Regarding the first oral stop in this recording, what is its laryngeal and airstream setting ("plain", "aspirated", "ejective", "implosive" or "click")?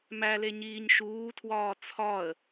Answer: aspirated